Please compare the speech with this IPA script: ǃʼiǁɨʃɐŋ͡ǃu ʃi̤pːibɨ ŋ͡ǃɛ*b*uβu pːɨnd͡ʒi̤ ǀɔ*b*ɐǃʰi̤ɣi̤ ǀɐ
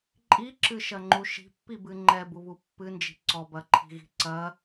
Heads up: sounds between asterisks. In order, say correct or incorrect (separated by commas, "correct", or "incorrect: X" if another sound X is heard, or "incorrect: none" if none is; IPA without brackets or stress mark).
correct, correct